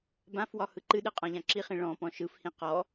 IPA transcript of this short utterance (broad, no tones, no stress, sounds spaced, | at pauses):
b ã f w ɒ h ɯ ǃ ɨ ɗ ɨ qʼ ɔ̃ ʎ ã ǁ i χ ĩ ɭ ɔ̃ p ɔ̃ ʃ ɯ f h ĩ q ɔ